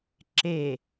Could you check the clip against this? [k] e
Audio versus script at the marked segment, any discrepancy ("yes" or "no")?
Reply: yes